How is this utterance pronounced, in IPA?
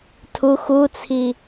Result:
tʰu xut͡sʰi

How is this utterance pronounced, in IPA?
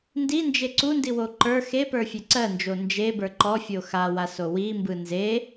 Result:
ndind͡ʒe ǀundiwo ǃə˞ xepə˞fʲe ǀɜnd͡ʒo nd͡ʒebə˞ ǃɔfʲo xawaso wimbɯ nze

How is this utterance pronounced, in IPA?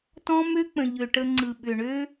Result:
tɔ̃˦mø˦k͡pə̃˨ ʎø˨ʈə˧ŋ͡ǀɯ˨ɓʏ˨ ɳø˦

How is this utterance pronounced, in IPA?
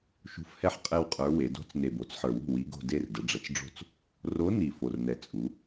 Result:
ʃṳ˧˥fhɛ˥˩ħ qʼɛ˥˧wqʼə˞˧˥we˩˧ do̤˧˥t͡s ne˨˩bo˩˧t͡sħə˞˨˩wṳ˥˩ wi˧˥ɡo̤˥˧ de˥˧rdə˩˧ ɖ͡ʐə˩˧t͡sɖ͡ʐo̤˥˩t͡s | ro˧˥ni˨˩ fo˨˩rnɛ˨˩t͡sʼu˩˧

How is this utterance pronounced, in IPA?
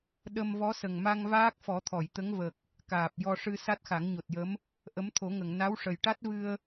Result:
ɗə˧m vɔ˧˥sə˨˩ŋma˧ŋ vaː˦˥k̚fɔ˨˩˦t̪ʰɔ˨˩˨j t̪ə˧˥ŋvə˨˩k̚ | kaː˨˩p̚ jɔ˧ʂɨ˧ sa˦˥t̚xa˨˩˦ŋɲo˨˩t̚jə˧˥m | ʔə˧˥mt̪ʰo˨˩˦ŋə˨˩˨ŋ na˧˥wʂə˨˩jʈa˦˥t̚ vɨ˧ə̯

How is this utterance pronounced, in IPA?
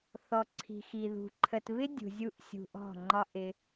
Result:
θɔ˧ǀʰi̤˧xi˧ðṳ˧ ǃʰə˧t βɪ˦dʲṳ˨zʲu˧ʔ sʲṳ˧ʔɔ̤˦˨ŋ͡ǃɒ˦ ʔɪ˦

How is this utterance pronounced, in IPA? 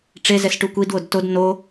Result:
ʈ͡ʂezɛs ʈukʷidwod tod no

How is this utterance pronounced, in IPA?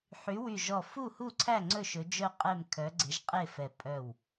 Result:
ħy˨˥ wy˧˩ʒɔ˧˩ fu˥˨ hu˥˨ǀʰæ˥˨ ŋ͡ǀɵ˥˨ʃɵ˨˥ d͡ʒœ˥˨qʼɛ˥˨m kʰœ˨˥ɡ͡ǀe˨˥ʒqʼe˥˨fɛ˧˩ pʼœ˧˩w

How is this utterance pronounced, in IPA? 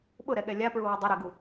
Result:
ɓʊɾɛɠɛ lʲapɹuwʊ dˤʊɾeɡu

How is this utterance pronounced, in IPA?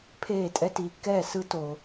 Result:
pʰeː˦˨tʼɛ˦tiː˧kːɛː˦˨ sɯ˦to˧

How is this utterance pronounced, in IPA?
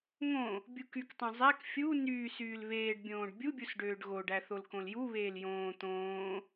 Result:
ŋõ | bʲukyktˤõ zˤæk fʲu nyːsyːl βeːɖbʲõːɖ bʲubʲus ɖøːɖɣoɖæ θolkõljuβeːl jõː t̪õː

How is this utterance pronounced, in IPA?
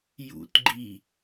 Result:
jṵtɡ͡ǃi

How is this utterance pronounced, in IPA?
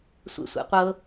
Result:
sʷḛsʷḛqʷɤ

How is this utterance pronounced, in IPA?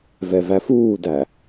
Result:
vɛvæfuːdæ

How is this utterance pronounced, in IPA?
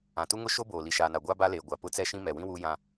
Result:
ã˨tu˦ŋʊ˦ ʃo˦boː˨ li˨ʃaː˨na˨ ɡʷa˦ ba˦leː˨ ɡʷa˨pʊ˦t͡sɛ˦ʃĩ˦ mɛ˨wĩ˦ wuː˦jã˦

